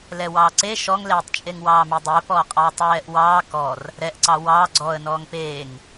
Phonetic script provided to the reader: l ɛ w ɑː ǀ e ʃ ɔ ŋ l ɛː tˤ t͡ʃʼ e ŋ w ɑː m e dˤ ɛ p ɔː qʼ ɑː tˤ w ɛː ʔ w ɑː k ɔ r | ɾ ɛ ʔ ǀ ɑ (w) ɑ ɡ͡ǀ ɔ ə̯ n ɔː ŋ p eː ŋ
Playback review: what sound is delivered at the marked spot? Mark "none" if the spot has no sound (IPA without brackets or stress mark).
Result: w